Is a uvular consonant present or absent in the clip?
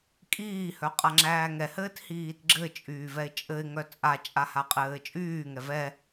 present